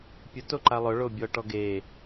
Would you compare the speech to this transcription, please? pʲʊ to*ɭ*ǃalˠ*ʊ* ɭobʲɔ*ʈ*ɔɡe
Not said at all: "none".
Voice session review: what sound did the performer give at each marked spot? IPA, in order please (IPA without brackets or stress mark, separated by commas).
none, ʊ, ʈ